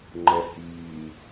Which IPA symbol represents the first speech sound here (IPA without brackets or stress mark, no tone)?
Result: ŋ͡ǃ